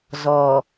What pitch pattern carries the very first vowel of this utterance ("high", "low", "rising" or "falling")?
low